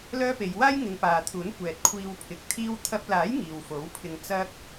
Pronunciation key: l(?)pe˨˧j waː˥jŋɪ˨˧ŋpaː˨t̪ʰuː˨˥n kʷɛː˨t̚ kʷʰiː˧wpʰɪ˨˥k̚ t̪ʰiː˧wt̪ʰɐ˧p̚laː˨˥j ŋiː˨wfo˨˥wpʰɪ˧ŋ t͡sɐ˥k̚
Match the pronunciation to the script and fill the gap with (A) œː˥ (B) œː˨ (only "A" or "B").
A